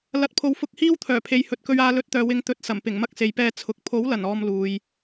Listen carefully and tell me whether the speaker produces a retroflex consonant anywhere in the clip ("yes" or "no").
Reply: no